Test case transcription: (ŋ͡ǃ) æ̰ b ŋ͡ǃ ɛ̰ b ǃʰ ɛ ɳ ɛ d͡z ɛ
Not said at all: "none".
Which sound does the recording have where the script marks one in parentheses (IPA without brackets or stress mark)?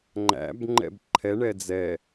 ŋ͡ǃ